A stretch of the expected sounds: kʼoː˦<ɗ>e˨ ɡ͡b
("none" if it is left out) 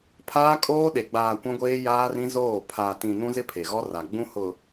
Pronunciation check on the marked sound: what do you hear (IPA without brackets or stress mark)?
ɗ